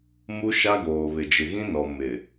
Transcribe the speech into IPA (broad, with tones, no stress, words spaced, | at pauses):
mu˦ʃa˦ɡoː˨βɪ˨ d͡ʒɪ˨ɣĩ˦nɔ˨ mɪ˨